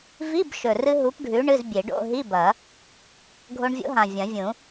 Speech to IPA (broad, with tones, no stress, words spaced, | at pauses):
vi˧˥˧bʃɵ˨˩rɨ˧ ɦu˨˥pɖʱʉ˨˥ ɳɨ˧˥˧zbʲe˨˩˦ɖ o̰˧˥˧ ɦi˧˥˧bɐ˨˩˦ | ɡʱo˧ɳvʲo̰˨˥ ɦã˨˩vʲɐ̃˨˩˦vʲũ˨˩˦